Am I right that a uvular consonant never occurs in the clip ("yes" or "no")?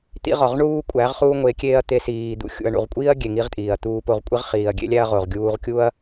no